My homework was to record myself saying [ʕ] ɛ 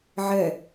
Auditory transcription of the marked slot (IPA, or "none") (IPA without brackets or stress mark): ʕ